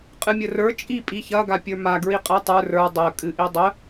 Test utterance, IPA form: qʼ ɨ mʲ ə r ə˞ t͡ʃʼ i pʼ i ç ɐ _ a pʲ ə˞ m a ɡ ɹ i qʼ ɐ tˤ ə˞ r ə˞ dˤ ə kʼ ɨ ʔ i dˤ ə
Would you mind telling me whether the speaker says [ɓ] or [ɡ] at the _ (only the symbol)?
ɡ